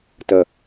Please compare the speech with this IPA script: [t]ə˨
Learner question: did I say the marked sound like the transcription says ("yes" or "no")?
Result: yes